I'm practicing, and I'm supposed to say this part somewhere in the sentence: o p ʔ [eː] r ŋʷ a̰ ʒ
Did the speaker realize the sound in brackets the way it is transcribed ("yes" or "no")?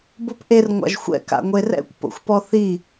no